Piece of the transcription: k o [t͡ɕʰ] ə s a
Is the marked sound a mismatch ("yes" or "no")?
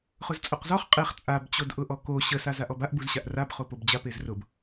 yes